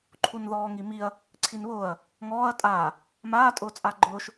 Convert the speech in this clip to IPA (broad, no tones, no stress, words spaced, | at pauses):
ǃʰunðɔːŋimiɐ̯ | ǀʰinβʊːɐ̯ | ŋɔːɐ̯ tʼaː | maː tʼʊːt͡sʼaɡ͡ǃʊːʃ